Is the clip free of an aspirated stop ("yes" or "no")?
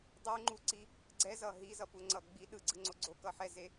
yes